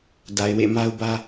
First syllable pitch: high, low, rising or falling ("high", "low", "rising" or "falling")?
low